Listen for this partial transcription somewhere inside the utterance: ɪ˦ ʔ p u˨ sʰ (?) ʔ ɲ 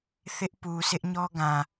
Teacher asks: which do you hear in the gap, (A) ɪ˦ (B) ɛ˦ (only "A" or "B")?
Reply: A